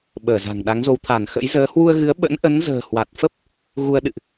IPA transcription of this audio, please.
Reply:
ɓ əː˧˩ z a̤˨˩ ŋ ɗ a˨˦ ŋ z o˨˦ w t̪ʰ a˧˩ n x ə̰˧˥ j z əː˨˦ h w u˧ ə̯ ɣ ɨ˨˦ ə̯ ɓ ə̰˧˥ n ʔ ə˨˦ n z ə̤ː˨˩ h w a˨˩ t̚ f ə˦˥ p̚ | ɣ u˧ ə̯ ɗ ɨ̰˧˨ ʔ

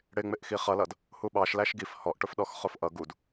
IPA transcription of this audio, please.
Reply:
ɽ ɪ ŋ͡m ɪ ʔ x i χ ʌ l ʌ d | h u ɓ ɑ ʃ l æ ʃ ɡ i f h ɔ ʔ ʈ ʊ f ɗ ɔ x χ ʊ f ʔ ʌ ɡ u d

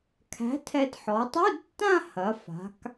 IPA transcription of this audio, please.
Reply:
kʰ æ̤˨˥ tʰ ɛ˧ d ħ ɔ˩˧ tˤ u˧˥˧ d tː ã˥˧ h ɐ˩˧ f a̤˩˧ k

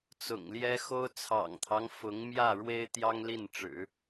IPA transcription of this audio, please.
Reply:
t͡s ʊ̰˨˩ ŋ l j ɛ˥ x o˥ ʊ̯ t͡sʰ ɑ̰˨˩ ŋ t̪ʰ ɑ˦ ŋ f ʊ˧˥ ŋ m j ä˥˩ ɻ w e˥ ɪ̯ t̪ j ɑ˥ ŋ l i˥˩ n ʈ͡ʂ ɻ̩˨˩˦

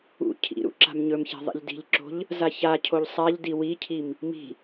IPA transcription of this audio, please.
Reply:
ṵ cʰ ḭ ɾ ṵ ǁ a̤ m ɲ ɵ m ç a̤ ðˤ ḭ ʎ d i̤ ʎ ǁ o̤ ʎ | z a ç a cʰ o ʎ sˤ a ʎ d i w i cʰ i m | m i̤

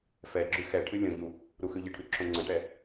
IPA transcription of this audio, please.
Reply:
f ɛ ɡ͡ǁ ʉ x ɛ ʈʰ ɨ lʲ õ ʎ u | ɾ u x ʉ ʎ ə ʈʰ ʉ ǁʰ õ ŋ͡ǀ ə̃ ʈ ɛ

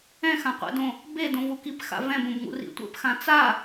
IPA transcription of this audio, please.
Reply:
ɛ̃ x ã qʷ ɛ̰ d õ | b e d õ v u k i p x a̰ v ɛ̃ b õ b ŋ ṵ r ḭ tʷ ɛ̰ p x ã t͡s a

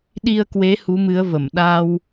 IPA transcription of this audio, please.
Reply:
ɗ i˧ ə̯ k w e˨˦ h u˨˦ m ɨ˨˦ ə̯ v ə˧˩ m ɗ a˧ w

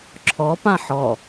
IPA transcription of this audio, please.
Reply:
ǁʰ ɔ p ã ħ ɔ

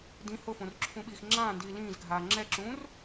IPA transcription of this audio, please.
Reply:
d ĩ h ʊ f õ r ǁʰ ũ ɓ iː x ŋ͡ǁ ãː n d iː l ĩː z ɡʱ aː ŋ͡ǁ ɛ ǁ ũː r

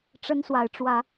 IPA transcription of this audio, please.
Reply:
ʈ͡ʂ ə˦ n s w a˨˦ ɪ̯ ʈ͡ʂ w ä˨˦

